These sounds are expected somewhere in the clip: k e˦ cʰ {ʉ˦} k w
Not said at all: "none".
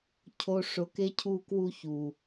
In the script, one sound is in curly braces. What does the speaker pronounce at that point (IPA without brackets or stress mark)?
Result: u˦